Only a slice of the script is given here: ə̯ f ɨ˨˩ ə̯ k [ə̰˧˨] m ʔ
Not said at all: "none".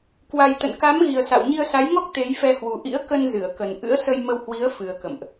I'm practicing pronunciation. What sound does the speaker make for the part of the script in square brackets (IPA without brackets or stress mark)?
ə̰˧˨